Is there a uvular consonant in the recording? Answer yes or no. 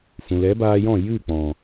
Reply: no